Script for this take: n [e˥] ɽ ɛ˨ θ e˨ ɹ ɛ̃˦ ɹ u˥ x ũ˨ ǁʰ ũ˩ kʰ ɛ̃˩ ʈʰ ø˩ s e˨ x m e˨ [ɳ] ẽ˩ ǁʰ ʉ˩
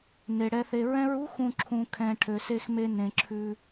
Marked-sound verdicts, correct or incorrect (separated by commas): incorrect, incorrect